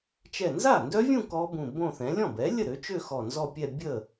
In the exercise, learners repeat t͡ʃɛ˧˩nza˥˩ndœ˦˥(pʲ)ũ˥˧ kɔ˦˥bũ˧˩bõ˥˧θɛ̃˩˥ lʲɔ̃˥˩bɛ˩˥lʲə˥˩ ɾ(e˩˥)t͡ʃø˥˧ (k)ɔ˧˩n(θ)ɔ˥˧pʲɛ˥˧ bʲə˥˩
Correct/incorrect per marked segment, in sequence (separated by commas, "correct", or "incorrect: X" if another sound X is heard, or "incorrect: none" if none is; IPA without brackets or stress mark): incorrect: vʲ, incorrect: ø˩˥, incorrect: x, incorrect: z